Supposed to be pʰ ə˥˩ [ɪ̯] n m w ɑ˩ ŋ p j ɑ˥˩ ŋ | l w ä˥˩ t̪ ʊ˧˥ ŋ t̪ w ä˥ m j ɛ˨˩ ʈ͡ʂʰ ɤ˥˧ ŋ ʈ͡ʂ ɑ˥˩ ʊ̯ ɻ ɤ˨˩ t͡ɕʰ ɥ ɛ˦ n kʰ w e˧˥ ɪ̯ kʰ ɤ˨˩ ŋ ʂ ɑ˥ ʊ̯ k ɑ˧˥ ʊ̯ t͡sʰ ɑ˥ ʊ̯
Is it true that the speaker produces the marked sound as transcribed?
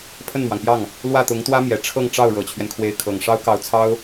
no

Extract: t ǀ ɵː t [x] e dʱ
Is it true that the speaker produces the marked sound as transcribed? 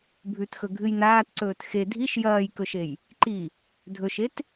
yes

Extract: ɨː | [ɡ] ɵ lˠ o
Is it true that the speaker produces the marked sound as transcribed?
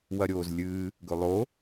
yes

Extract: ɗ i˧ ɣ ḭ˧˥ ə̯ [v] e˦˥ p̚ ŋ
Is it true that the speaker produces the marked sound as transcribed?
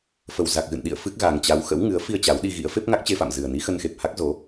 no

